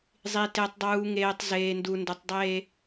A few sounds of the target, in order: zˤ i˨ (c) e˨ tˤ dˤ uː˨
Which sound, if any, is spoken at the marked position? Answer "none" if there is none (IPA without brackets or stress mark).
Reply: t